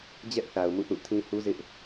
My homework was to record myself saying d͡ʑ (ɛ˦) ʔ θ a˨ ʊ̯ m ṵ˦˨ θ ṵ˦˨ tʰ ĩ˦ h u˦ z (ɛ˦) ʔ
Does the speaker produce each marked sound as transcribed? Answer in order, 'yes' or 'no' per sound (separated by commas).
yes, no